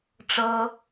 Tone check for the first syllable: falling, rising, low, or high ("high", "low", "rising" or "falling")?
high